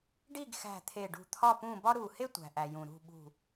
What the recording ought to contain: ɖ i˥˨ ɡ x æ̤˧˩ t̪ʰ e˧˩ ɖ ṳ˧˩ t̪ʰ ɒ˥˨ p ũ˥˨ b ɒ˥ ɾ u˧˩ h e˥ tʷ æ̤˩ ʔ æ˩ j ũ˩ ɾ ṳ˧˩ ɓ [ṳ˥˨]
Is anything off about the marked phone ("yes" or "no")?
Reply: yes